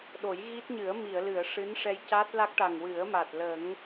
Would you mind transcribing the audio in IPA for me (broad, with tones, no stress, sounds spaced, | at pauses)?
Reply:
ɗ o˨˩˦ j ɣ i˦˥ t̚ ɲ ɨ˨˩˦ ə̯ m i˨˩˨ ə̯ l ɨ˨˩˨ ə̯ ʂ ɨ˧˥ n ʂ ɛ˧ j c a˦˥ t̚ l a˦˥ k̚ ʈ a˨˩ ŋ w ɨ˨˩˦ ə̯ m a˨˩ t̚ l ə˨˩˦ ŋ